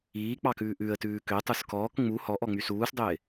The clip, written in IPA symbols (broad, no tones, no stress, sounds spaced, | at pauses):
iː k͡p ɑ k ʉː ʔ ʉ ə̯ t ʉː k ø tˤ u s k ɔː k ŋ͡m u h ɔ ʔ ɔ ŋ͡m y s uː s dˤ ø ɪ̯